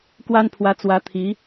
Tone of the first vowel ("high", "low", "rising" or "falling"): high